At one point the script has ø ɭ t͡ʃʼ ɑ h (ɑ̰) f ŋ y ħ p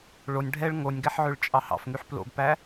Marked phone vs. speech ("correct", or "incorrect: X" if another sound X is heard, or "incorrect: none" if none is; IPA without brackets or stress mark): correct